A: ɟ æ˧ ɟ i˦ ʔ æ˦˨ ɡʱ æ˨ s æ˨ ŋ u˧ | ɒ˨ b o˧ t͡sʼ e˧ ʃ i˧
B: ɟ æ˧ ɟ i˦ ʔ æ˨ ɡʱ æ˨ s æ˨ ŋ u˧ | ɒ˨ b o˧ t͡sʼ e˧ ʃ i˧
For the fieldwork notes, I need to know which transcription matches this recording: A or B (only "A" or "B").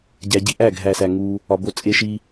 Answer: A